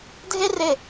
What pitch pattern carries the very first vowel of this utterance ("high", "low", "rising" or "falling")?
high